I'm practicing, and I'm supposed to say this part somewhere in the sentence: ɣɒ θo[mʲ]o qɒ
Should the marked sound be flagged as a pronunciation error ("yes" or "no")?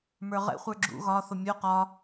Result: no